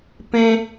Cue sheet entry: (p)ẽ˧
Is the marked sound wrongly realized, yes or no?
no